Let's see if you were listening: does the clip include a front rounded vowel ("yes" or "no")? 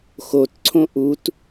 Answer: no